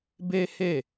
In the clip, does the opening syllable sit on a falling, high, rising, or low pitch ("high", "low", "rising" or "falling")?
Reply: high